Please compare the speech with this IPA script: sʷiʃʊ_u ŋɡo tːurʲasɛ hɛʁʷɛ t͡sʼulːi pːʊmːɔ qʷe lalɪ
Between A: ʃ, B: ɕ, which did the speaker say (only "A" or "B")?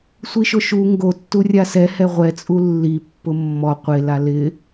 A